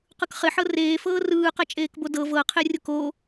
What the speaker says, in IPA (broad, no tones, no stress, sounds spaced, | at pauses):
q ɯ k χ ɪ ħ ɤ r eː f ɤː r ɯː q ɛ t͡ʃʼ eː k b o d ɤ v ɤ qʰ e rʲ ʊ k o